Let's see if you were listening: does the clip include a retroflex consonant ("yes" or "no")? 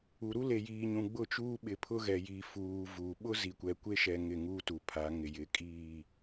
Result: no